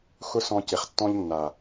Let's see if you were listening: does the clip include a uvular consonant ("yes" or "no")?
yes